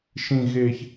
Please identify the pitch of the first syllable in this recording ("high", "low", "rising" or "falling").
low